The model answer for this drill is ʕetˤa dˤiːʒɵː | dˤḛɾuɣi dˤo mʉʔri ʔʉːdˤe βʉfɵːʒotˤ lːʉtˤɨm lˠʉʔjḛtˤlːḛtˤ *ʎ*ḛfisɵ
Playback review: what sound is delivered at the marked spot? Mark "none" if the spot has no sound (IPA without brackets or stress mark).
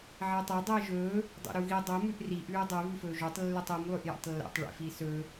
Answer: ɭ